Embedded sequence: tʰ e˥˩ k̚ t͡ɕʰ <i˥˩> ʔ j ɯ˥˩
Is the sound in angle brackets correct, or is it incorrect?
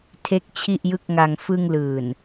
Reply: correct